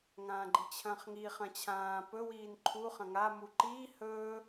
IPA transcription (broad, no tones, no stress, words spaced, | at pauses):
ŋãːɡ͡ǃit͡ɕʰɐ̃ːχŋi χɐ̃t͡ɕʰãː pɵ wiːnǃʰu χɐ̃ŋa muǃiː hɵ